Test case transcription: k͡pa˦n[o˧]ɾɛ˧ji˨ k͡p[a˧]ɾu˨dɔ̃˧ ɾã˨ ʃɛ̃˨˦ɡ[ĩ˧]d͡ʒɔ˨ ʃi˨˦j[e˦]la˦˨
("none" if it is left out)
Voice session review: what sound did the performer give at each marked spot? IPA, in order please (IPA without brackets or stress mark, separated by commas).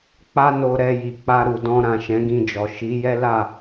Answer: o˧, a˧, ĩ˧, ɛ˦